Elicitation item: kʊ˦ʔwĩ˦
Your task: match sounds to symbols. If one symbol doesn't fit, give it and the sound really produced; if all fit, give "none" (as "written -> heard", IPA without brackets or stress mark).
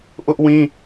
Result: k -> ʔ